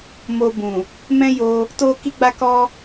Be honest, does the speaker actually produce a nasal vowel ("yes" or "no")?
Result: yes